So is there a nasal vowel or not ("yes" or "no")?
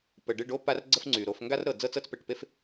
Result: no